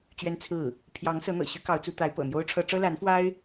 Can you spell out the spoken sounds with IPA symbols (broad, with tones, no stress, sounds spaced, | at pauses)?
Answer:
t͡ɕ ɥ ɛ˥ n t͡sʰ ɹ̩˥˩ | pʰ j ɑ˧˥ ŋ s ɤ˧˥ n̪ ɤ̰˨˩ ɕ y˥ k ɑ˧˥ ʊ̯ t͡s u˧˥ t̪ a˧˥ ɪ̯ p ɤ̰˨˩ n̪ j o˥ ʊ̯ ʈ͡ʂʰ ɤ˥ ʈ͡ʂ ɤ˥ l a˧˥ n f w a˥ ɪ̯